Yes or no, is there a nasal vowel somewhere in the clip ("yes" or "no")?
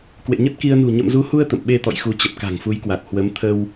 no